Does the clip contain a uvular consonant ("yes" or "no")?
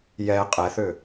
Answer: yes